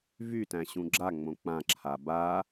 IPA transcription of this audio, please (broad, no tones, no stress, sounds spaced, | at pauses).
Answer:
v y t æ̃ ɕ ũ ɡ͡ǁ a ŋ͡m õ k͡p ã ǁʰ a b a